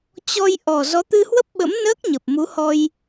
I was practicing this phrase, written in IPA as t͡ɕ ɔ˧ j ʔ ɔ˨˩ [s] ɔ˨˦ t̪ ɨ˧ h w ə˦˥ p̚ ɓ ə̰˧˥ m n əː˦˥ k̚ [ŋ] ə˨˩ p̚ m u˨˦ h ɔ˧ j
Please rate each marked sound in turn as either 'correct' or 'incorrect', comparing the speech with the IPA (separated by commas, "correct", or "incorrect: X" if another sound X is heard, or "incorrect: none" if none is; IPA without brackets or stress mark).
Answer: incorrect: z, incorrect: ɲ